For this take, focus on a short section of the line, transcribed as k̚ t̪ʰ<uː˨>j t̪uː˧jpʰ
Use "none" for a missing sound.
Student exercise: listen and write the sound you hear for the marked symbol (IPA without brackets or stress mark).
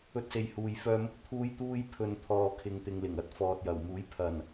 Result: uː˧